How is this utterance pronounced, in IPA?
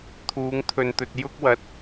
t̪ʰuː˨˧ŋt̪ʰɵ˨nt̪ɵ˨t̚ jʊ˥k̚wɐ˨˥t̚

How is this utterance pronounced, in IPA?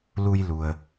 lu˧jlu˩ə̯

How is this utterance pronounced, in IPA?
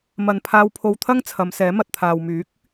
mɐ˨npʰaː˧wpʰo˧wt̪ʰɐ˥ŋ t͡sʰɐ˨˧msɛː˨˥mɐ˨t̚ t̪ʰaː˨wmyː˨˥k̚

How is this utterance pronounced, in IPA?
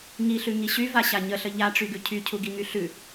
ŋiɬʉ ŋiɕy vaɕaɲəɬə ʎaʈ͡ʂyɡʉ cʰycʰuɡiŋy ɬʉ

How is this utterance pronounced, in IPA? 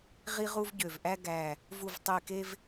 ʁi˧ʁu˧vɟø˨˩vʔæ˧ ɡæ˨˩ | vu˨˩vtˤi˨˩ke˧v

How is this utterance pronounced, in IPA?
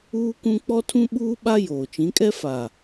uː˦kũ˦ k͡pɔ˦tʰũ˦ɓuː˦ɓa˦ joː˨t͡ʃĩ˨˦kʼɛ˦ fa˨

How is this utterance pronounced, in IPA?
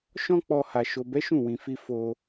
ʃɔ̃˦k͡pɔ˧ ha˨ʃo˨bɛ˨˦ ʃũ˦˨wĩ˨fi˧ fo˧

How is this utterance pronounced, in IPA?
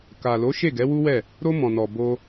ka˨lo˨˦ ʃe˦˨ɡɛ˨˦wu˦wɛ˦˨ | ɾo˧ mɔ̃˨nɔ˨ bo˧

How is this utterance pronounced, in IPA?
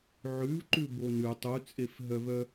ʕʉvǃʉ bonʉ tˤut͡sʼefɦœvœ

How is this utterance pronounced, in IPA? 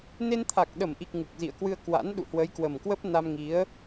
ne˧nt̪ʰa˨˩k̚ɗə˧˩mʔi˨˩k̚ ŋu˨˩k̚zḭ˧˨ə̯kwɨ˧ə̯ kwa̰˧˥n ɗṵ˧˨hwə˨˦jkwə˨˩mkwə˦˥p̚ na˧mŋi˨˦ə̯

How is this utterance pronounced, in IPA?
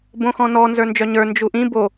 bõxɔ̃nɔ nzə˞nd͡ʒœɲə˞ nd͡ʒuʔĩ bo

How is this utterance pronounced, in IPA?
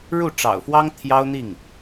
ɻu˥˩ʈ͡ʂɑ̰˨˩ʊ̯fwɑ˥ŋ t̪ʰjɑ˥ʊ̯n̪i˥˩ŋ

